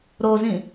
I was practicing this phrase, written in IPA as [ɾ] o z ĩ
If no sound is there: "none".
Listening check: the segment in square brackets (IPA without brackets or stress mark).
ɾ